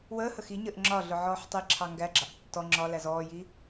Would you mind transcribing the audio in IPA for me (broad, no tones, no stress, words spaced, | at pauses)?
wəːhə xiɲəːʔ ŋ͡ǁɒ ɮʊʕɔːħtˤiǁʰɑ ŋɡæɡ͡ǁɑʔ tːɔ ŋ͡ǁɒlæz ɔːji